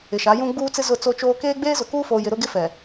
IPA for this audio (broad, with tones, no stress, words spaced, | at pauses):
ɪ˨ʃa˨˦jũ˦ ɡ͡buː˦t͡sɪ˦ zʊ˦˨t͡so˦t͡ʃoː˦ keː˦ɡ͡beː˦zʊ˨kuː˦ foː˨jɪ˨ ɾʊ˦ɡɪ˦fɛ˨